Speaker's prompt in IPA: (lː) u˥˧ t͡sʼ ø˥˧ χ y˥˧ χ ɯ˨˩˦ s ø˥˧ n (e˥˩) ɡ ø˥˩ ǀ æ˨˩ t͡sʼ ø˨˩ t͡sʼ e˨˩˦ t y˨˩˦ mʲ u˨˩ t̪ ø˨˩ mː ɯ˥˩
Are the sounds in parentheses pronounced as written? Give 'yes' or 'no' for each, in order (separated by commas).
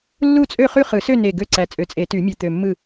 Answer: yes, no